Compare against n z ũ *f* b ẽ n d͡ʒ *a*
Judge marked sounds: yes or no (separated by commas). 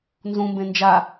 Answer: no, yes